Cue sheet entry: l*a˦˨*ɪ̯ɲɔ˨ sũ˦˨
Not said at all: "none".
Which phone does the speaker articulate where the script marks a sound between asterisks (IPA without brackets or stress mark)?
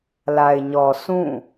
a˨